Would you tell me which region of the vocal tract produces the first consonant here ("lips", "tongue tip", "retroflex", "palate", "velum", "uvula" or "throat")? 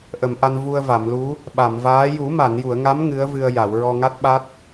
throat